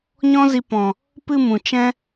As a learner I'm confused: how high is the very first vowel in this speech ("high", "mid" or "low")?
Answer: mid